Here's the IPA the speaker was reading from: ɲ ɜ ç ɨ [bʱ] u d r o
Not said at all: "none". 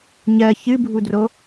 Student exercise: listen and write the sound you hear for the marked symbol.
bʱ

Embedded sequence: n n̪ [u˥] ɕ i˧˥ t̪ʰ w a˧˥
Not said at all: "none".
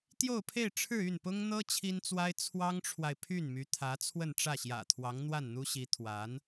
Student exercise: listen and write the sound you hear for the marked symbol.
u˥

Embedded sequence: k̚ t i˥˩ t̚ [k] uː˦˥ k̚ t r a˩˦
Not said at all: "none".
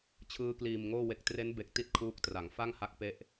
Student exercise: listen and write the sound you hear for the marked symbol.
kʰ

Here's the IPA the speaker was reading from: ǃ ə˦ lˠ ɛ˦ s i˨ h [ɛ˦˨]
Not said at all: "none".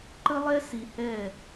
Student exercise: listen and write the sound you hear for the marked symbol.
ɛ˦˨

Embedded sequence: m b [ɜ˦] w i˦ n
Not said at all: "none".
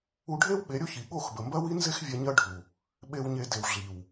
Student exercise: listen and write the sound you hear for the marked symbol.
ɜ˦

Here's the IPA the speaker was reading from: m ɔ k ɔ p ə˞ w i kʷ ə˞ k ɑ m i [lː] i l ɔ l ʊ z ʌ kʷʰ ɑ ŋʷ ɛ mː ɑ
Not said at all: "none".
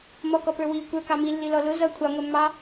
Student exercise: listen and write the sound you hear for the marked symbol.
lː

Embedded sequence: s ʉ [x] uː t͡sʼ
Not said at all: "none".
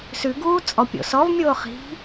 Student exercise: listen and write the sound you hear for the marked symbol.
ɡ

